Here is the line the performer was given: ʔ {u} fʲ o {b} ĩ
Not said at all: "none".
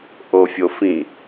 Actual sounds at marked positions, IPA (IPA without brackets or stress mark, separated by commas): o, f